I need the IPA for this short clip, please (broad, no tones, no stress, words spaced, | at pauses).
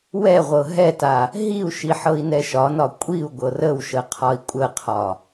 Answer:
wɛʁʷɤ ɦɛta | ɦiu̯ʃi ħɤi̯nɛʃɒnɒ kʷʼiu̯ ɡʷɤrəwʃə qʰɒi̯kʷʼəqʰɒ